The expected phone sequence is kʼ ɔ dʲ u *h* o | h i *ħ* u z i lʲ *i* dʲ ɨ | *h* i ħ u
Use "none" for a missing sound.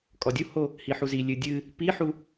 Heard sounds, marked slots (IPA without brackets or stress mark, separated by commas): h, ħ, ɨ, p